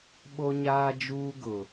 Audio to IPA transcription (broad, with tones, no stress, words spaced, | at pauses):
ɓo˦ɲaː˦d͡ʒuː˦ ɡʊ˨